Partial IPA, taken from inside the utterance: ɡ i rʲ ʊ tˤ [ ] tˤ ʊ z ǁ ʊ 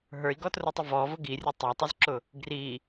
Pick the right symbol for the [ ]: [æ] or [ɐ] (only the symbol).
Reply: æ